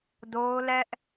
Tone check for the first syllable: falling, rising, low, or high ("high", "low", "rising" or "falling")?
high